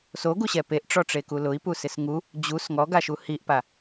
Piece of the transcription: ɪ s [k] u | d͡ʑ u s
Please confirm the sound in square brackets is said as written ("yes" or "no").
no